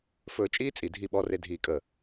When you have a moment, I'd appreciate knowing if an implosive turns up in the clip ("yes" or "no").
yes